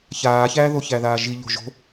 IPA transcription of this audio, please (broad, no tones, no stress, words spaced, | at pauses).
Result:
çaːçæːðo çæðaːʒi ʎo̤ʒo̤